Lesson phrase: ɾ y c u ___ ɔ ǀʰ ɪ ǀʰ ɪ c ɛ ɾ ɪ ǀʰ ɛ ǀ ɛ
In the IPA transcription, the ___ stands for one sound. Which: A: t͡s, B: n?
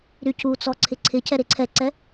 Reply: A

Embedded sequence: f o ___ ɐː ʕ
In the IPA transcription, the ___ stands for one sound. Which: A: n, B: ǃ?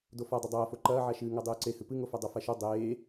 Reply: B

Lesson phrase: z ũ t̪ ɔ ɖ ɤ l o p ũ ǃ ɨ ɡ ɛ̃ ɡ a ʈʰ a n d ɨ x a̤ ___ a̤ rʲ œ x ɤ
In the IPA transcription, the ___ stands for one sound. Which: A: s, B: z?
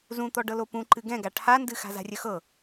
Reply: B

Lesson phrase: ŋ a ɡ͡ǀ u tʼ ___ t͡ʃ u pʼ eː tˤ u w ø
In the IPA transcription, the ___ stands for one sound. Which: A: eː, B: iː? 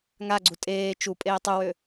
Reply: A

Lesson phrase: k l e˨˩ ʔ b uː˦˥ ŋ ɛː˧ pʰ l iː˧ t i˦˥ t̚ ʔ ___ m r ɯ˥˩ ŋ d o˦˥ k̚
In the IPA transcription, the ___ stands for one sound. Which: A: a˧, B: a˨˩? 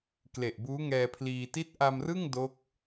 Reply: A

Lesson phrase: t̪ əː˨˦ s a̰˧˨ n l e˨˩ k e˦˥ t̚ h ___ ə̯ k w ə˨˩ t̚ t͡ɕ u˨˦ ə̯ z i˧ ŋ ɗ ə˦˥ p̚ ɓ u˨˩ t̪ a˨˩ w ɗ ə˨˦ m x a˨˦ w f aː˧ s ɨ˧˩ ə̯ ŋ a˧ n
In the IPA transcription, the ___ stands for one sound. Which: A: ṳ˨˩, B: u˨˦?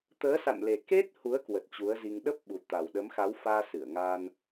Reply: B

